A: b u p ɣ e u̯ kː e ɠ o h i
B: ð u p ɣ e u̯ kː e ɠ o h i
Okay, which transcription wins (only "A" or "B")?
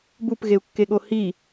A